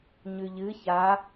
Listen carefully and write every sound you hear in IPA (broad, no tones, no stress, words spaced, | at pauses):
ɲʉʎɨ ça